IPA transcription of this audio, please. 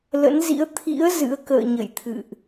lə̰˧˥nzḭ˧˥ə̯ t̪ʰḭ˧˥ə̯ zɨ̰˧˥ə̯kə̰ː˧˨ ɲə̰˧˨jt̪ʰɨ̰˧˨ʔ

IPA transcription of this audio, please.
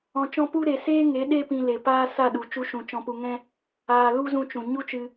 ɔ̃˧t͡ʃɔ̃˦ pu˦ ɾe˨seː˦ŋe˨˦ ɗe˦pĩ˧ le˨paː˦ sa˦˨ɗu˨ t͡ʃu˧ʃũ˨ t͡ʃɔ̃˧pu˧ŋɛ̃˦ | aː˧lu˦ zũ˧t͡ʃũ˨ ɲu˦t͡ʃɨ˧

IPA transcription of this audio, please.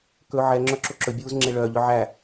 kɵ ʕɛŋ͡ǁœ ǁoǁɵbʲuːz ŋ͡ǁeɭœːʎœ ʕæ

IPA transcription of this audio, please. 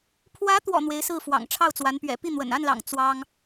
pʰwä˧˥t̪wɔ̰˨˩ n̪we˧˥ɪ̯sɹ̩˥˩ fwɑ̰˨˩ŋʈ͡ʂʰɑ˥˩ʊ̯t͡swa˧˥n pɥɛ̰˨˩ pi˥˩n̪wə̰˨˩n a˥˩nlɑ̰˨˩ŋ t͡swɑ˥ŋ

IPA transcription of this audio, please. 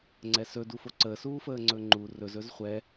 ŋ͡ǀɛsɵ dufoǀəː suːfəːŋ͡ǀɵŋ͡ǃu rɵz ɵzχʷɛ

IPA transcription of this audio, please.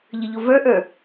ʎəʎovə˞ʔə˞

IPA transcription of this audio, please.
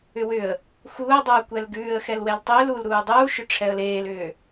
ʏwʏə̯ | xuːə̯dˤuː kʷɛlɡʉːə̯ xɛlwɛltˤʏːl ulɾuː dˤuːʃʏʈ͡ʂʰɛə̯ leːlʏː

